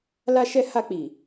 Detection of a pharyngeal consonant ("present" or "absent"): absent